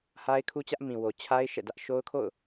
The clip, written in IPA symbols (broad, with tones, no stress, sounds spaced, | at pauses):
h a˦ ɪ̯ kʰ u˦ t͡ɕ ä˦ ʔ m ĩ˨ w o˨ t͡ɕʰ a˦ ɪ̯ ʃ ɛ̰˦˨ d ä˦ ʔ ʃ o˦ ʊ̯ kʰ o̰˦˨ ʊ̯